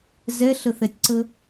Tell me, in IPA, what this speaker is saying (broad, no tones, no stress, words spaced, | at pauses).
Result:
zɛɬəθɛtʲǀə